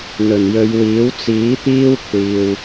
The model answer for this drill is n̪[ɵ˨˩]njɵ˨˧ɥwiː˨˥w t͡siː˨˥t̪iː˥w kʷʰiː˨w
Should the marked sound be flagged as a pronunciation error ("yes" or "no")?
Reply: no